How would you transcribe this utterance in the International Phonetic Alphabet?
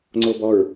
ŋ͡ǀ o b ɔ ɹ

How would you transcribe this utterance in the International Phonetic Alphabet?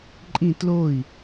ǃʼ ĩ t l o i̯

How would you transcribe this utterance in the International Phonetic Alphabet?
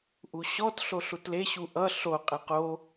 ʔ u ɕ ɔ t ɬ o ɬ u t l e ɕ u ʔ ʌ ɬ o qʼ e q o

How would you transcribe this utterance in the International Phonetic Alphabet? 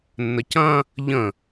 nː ə c ɐ̃ | ʎ ə̃

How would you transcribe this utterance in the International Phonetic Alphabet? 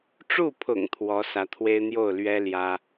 ʈ͡ʂ u˥˩ pʰ ʊ̰˨˩ ŋ t̪ʰ w ɔ˧˥ s ä˧˥ t̪ʰ w e˥ ɪ̯ n̪ j o˥˩ ʊ̯ l ɥ ɛ˥ l j ä˥

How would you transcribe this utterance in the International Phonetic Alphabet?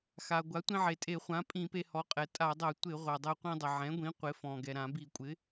x a˩ ɡʷ a˩˥ tʷ ĩ˧ ʕ e˩ tʼ e˧˩˧ χʷ ã˩˥ pʼ ĩ˧˩˧ p e˧ h ɔ˩˥ qʼ ɛ˩ tʼ a˧˩˧ dˤ ɛ˧˩˧ tʷ ɪ˧˩˧ ʁʷ a˩ dˤ e˧ qʷ ĩ˧ dˤ ɪ˩ ʕ ɛ̃˩˥ ɡʷ ĩ˩˥ qʷ ɪ˩˥ f ɔ̃˩ ɡ ɛ˩ ɾ ã˧˩˧ b i˧˩˧ kʷʼ ɪ˩˥

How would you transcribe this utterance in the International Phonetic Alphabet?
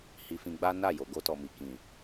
h i˧ f ĩ˧ ɡ͡b a˦ n a˦˨ j o˨ ɡ o˧ t ɔ˨ m i˨ k ĩ˨

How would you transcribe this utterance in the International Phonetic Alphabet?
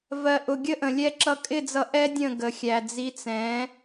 v ɜ˨ ʔ ʊ˨ ɡʲ ə˦ ʔ ə̃˨ lʲ ɛ˦ ǁ ʌ˧ kʼ ɪ˦˨ d͡z ʌ˧ ʔ ɛ˦ dʲ ə̃˦˨ ɡ ə˨ xʲ æ˨ d͡z i˨˦ t͡s ɛ̃˨˦

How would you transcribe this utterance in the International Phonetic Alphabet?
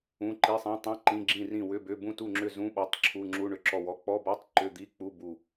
ũ˧˥˧ ǃ i˧˥˧ sˤ ĩ˧˥˧ tˤ ĩ˧˥˧ ǃ ĩ˧˥˧ ɡ͡ǁ ĩ˥˨ r ĩ˥˨ w ʏ˧˥˧ b ʏ˧˥˧ b ũ˥˨ t u˥˨ ŋ͡ǁ ʏ˥˨ z ũ˧˥˧ ɓ ɔ˧˥˧ tˤ ǁʰ u˧˥˧ ŋ͡ǁ u˧˥˧ ɳ ʏ˥˨ ǁ ɔ˥˨ w ɔ˧˥˧ k͡p ɔ˧˥˧ b ɔ˧˥˧ tˤ ǃ ʏ˧˥˧ d̪ i˧˥˧ k͡p u˧˥˧ b u˥˨

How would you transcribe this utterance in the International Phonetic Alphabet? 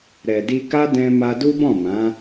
ɾ ɛ˨ d i˧ k a˦ d ɛ̃˦ m a˦ d u˦ b ɔ̃˦˨ m ã˨˦

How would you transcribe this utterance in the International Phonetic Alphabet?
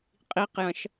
qʼ i q j ɐ̃ ʃ

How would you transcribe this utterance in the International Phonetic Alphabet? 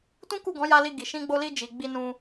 t ũ˦ k u˦˨ ɡ ɔ̃˨˦ j a˧ l i˧ ɡ i˨ ʃ ĩ˧ ɡ͡b o˧ l i˧ d͡ʒ i˨ ɡ͡b i˧ n ũ˧

